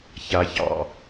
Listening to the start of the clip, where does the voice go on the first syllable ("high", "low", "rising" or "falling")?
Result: low